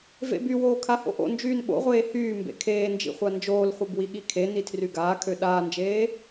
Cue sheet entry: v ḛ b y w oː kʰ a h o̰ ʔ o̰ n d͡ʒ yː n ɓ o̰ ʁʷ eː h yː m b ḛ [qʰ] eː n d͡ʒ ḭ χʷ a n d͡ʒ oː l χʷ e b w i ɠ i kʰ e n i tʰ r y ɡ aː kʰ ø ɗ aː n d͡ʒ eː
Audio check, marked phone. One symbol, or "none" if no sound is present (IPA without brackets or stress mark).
kʰ